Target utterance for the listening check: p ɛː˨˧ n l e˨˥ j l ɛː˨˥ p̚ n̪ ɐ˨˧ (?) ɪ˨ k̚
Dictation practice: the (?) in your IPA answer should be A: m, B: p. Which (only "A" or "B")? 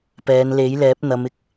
A